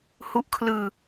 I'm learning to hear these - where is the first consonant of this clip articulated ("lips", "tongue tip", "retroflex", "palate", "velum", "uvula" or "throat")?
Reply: throat